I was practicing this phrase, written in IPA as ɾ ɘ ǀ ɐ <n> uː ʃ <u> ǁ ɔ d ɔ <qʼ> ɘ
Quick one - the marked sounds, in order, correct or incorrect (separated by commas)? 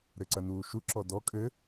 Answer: correct, correct, incorrect